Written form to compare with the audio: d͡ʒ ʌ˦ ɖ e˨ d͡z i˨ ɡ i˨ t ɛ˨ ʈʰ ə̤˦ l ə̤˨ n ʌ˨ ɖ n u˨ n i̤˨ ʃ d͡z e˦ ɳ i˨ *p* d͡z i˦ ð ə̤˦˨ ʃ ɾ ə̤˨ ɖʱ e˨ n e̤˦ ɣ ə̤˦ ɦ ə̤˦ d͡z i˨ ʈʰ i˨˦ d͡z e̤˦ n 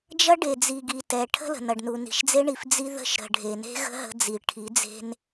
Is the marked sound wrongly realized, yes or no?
yes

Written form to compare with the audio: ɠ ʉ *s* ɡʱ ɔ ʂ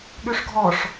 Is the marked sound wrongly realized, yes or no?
yes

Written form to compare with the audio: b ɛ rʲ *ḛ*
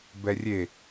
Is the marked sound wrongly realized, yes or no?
yes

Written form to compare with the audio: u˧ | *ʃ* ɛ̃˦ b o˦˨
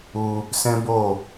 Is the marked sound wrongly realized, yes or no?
yes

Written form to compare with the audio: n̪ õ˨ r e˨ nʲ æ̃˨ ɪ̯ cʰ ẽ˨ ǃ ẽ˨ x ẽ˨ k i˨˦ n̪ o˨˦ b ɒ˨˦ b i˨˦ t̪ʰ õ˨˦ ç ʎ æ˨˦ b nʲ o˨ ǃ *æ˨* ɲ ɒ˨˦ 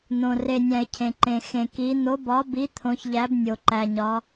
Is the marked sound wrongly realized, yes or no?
no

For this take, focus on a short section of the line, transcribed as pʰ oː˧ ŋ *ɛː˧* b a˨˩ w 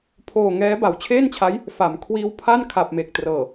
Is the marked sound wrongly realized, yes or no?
yes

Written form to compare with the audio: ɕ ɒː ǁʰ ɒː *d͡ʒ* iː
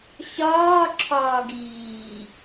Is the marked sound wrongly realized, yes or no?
yes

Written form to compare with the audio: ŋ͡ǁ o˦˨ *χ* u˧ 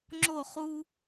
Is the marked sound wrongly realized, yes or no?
no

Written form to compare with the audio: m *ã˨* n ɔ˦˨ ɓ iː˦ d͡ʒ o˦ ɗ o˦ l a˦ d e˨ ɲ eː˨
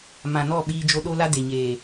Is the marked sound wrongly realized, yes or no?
no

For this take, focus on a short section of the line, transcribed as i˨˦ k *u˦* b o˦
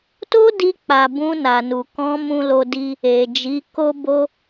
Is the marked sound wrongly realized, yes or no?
yes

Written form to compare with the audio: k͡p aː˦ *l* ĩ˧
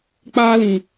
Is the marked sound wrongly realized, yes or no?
no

